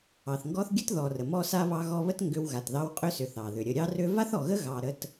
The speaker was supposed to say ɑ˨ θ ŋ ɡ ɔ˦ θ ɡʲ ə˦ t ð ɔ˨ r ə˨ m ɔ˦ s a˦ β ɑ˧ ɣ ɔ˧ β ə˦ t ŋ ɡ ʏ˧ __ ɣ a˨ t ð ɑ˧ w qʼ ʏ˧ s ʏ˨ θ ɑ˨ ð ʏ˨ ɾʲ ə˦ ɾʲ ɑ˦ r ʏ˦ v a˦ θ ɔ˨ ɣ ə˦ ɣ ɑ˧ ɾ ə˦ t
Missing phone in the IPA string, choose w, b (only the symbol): w